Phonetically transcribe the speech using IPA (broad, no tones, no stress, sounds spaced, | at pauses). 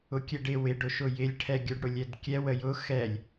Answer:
ʊ kʲ ɛ ɖ ɪ w ɪ ɖ ʊ ʃ ʊ j ɪ lʲ ʈʰ ɛ ɡʲ ə˞ ɖ ɽ ʊ lʲ ɛ d kʲ ɛ w ə j ʊ x ɛ lʲ